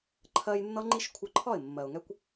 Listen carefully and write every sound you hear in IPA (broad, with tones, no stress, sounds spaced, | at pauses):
ǃʰ ɜ˧ j nː ʌ˦ ŋ͡ǃ i˦ ʃ kʷʰ ʌ˧ ǃʰ ɒ˦˨ ɪ̯ mː ɜ˨ ʊ̯ ŋ ɛ˦ kʷ